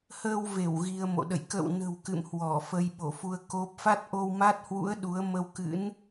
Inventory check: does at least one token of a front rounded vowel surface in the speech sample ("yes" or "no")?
no